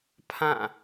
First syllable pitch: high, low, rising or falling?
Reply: falling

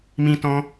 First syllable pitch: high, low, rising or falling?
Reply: high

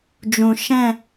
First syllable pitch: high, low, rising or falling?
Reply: low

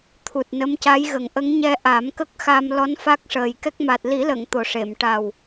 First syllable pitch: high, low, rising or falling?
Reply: low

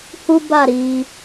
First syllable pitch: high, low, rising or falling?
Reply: high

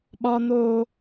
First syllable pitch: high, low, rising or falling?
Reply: high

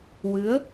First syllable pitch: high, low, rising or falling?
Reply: rising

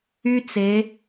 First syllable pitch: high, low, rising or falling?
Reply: high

